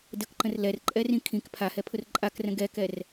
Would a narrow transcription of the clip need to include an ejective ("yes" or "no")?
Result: yes